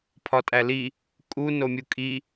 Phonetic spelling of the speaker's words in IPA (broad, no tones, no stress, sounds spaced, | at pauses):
pʰ ɒ tʼ æ l i | kʼ u n o mʲ u kʼ i